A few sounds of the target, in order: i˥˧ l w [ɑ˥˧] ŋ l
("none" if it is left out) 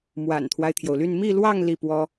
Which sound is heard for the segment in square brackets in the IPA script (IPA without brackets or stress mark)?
ɑ˥˧